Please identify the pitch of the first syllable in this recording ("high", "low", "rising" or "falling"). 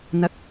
rising